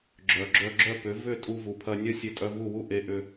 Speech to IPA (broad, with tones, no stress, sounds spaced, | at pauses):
ɡ͡ǁ œ˩ ɡ͡ǁ œ˧ ɡ͡ǁ œ˥˩ p ʏ˩˥ v ʏ˥˩ tʼ u˧ v u˩ pʰ ɐ˧ nʲ ɐ˥ sʲ e˧ tʼ œ˧ v u˥˩ w u˥ ʔ e˩˥ ʔ ʏ˧